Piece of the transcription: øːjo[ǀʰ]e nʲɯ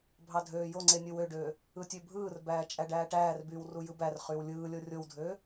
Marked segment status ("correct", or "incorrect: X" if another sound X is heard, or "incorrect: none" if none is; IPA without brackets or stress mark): incorrect: ŋ͡ǀ